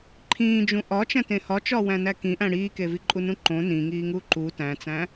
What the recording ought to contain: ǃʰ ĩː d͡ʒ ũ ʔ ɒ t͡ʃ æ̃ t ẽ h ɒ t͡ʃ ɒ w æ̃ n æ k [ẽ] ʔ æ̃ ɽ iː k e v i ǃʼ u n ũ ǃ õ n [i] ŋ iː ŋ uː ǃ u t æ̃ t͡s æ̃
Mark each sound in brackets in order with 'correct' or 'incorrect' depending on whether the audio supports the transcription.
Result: incorrect, incorrect

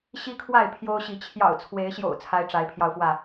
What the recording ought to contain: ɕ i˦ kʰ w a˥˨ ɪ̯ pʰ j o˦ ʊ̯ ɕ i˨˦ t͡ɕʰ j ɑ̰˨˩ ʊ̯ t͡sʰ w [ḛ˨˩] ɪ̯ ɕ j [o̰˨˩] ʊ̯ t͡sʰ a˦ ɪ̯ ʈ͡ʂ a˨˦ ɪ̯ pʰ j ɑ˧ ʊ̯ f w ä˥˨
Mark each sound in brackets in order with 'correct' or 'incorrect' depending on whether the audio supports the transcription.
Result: incorrect, correct

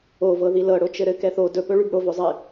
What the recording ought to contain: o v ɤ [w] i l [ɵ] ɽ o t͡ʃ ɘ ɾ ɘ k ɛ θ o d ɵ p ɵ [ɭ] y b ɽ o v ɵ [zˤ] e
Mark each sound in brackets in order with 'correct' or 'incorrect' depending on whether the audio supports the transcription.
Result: incorrect, incorrect, correct, correct

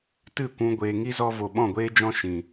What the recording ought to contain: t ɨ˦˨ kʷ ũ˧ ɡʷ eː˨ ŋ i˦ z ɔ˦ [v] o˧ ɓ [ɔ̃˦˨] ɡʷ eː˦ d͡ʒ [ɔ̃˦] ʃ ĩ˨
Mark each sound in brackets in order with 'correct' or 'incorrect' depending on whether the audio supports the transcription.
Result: correct, correct, correct

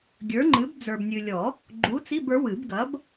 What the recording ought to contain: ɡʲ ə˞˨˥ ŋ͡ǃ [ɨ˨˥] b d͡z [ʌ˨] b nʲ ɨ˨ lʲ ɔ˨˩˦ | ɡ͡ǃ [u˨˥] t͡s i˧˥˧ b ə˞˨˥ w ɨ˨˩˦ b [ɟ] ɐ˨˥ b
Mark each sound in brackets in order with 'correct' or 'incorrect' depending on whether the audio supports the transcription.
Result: correct, incorrect, correct, incorrect

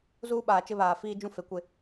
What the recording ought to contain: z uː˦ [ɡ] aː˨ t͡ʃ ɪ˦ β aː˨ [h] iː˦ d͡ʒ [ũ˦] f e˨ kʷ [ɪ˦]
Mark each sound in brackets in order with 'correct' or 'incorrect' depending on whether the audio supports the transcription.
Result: incorrect, incorrect, correct, correct

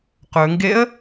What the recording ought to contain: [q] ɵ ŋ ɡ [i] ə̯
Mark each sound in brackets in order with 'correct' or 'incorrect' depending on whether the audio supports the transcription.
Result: correct, incorrect

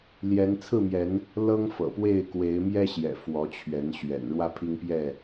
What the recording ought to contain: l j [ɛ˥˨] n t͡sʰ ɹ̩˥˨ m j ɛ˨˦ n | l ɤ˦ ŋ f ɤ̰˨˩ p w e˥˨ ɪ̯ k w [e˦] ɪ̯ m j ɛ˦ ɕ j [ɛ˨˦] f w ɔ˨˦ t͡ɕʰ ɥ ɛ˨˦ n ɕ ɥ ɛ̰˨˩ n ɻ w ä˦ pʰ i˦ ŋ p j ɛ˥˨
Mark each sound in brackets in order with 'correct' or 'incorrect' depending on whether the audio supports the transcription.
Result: incorrect, incorrect, incorrect

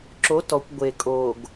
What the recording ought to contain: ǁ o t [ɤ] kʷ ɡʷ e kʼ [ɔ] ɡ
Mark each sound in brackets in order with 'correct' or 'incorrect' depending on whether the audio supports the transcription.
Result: incorrect, incorrect

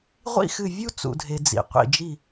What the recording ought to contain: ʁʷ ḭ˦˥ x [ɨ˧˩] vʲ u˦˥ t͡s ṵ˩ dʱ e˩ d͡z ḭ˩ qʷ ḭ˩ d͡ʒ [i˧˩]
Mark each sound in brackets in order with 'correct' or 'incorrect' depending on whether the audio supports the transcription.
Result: correct, correct

